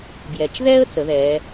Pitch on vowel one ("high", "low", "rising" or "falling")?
low